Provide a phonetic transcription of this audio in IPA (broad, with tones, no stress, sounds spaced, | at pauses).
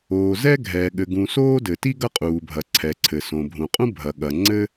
oː˩ z ɛː˥ ɡʱ ɛː˩ ɠ ɘ˩ ɡ ũ˩ s oː˥ d ɘ˩ t i˥ ɡ ɐ˥ qʼ uː˩ bʱ ɐ˩ ǀʰ ɛ˩ ǀʰ ɘ˩ s õ˩ bʱ ũ˩ qʼ ũ˥ bʱ ɐ˩ ɠ ɐ˩ ŋ͡ǀ ɘ˥